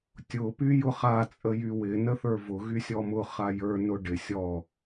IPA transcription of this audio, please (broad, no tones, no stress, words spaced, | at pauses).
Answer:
tʲʊ pyjʊχa t͡sʼəjywɪ nəθə˞vʊ ɣysʲɔmʊ χajə˞ nʊɖɪ sʲɔ